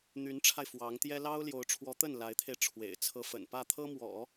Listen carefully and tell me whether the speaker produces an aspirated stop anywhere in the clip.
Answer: yes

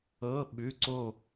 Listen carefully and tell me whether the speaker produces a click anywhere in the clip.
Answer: yes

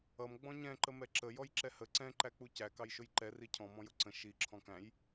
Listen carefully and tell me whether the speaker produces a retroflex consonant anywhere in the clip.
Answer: no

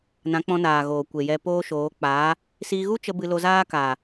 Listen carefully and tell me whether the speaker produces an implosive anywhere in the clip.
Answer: no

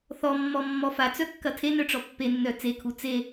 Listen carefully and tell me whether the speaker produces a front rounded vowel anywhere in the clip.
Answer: yes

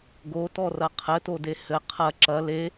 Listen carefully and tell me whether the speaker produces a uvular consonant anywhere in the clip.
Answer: yes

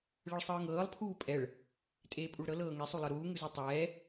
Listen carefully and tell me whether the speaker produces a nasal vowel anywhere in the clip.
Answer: no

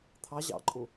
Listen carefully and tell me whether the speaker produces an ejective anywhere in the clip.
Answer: yes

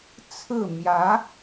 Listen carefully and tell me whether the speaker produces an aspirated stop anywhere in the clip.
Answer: yes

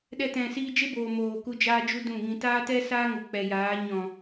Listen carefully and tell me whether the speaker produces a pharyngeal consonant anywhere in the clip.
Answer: no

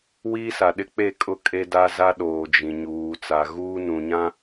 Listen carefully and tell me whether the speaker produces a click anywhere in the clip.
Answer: no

